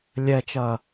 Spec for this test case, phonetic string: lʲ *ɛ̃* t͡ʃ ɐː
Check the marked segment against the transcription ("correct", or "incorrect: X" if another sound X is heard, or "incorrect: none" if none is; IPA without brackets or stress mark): incorrect: ɛ